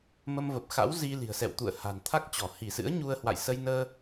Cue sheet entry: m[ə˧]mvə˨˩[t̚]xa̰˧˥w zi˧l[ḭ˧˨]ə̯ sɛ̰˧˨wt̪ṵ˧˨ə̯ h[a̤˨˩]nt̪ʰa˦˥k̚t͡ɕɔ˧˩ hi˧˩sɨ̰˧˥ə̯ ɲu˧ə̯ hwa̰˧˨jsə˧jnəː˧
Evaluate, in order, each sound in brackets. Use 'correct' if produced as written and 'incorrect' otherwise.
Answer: correct, incorrect: p̚, incorrect: i̤˨˩, correct

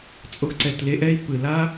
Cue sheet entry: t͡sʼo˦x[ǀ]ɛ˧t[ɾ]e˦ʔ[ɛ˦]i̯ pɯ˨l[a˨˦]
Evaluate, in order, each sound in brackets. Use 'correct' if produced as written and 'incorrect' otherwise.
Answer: correct, incorrect: l, correct, incorrect: a˦

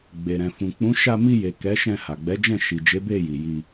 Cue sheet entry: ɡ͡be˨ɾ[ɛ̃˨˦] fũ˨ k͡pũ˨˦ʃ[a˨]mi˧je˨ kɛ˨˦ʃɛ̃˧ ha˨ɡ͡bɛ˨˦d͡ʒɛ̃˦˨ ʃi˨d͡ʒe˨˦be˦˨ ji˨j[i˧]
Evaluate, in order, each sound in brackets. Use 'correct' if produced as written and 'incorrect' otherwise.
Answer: incorrect: ɛ̃˨, incorrect: a˧, correct

